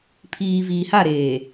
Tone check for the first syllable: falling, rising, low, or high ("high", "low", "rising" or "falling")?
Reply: low